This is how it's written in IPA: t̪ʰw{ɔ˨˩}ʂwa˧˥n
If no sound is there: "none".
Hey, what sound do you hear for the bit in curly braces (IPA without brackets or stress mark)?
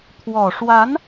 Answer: ɔ˨˩